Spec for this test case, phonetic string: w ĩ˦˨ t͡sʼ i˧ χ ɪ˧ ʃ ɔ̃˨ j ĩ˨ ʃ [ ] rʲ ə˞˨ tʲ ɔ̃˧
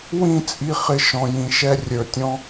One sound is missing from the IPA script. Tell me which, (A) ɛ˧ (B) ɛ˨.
A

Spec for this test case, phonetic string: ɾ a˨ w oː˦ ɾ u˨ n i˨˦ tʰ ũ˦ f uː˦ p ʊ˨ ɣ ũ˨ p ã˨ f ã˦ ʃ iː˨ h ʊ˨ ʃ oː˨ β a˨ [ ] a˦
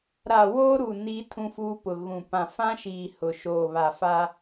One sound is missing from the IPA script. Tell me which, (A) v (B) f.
B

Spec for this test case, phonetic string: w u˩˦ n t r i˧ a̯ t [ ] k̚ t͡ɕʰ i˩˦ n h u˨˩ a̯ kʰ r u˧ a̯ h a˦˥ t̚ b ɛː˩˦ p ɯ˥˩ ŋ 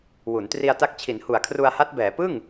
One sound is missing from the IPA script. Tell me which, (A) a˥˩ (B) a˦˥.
B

